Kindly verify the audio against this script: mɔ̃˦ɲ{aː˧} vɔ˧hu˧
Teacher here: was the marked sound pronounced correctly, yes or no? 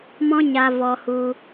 no